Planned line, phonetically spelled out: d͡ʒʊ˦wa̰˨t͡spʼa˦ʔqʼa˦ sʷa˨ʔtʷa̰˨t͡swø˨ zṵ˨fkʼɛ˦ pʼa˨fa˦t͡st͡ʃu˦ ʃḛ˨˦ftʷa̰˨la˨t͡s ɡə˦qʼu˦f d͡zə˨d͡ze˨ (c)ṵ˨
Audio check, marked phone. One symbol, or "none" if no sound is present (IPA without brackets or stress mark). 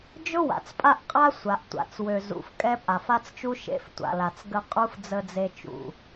t͡ʃ